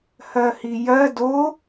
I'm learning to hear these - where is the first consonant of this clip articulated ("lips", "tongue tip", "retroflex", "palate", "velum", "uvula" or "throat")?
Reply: throat